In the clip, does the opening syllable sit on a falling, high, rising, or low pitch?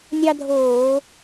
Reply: high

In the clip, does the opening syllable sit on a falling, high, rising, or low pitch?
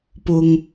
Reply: low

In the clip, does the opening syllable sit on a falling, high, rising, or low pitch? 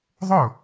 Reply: falling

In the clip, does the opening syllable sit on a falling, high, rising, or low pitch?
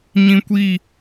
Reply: high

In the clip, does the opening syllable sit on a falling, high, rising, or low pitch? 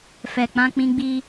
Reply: low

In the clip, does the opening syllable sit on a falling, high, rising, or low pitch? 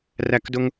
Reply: falling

